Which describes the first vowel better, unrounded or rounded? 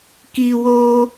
unrounded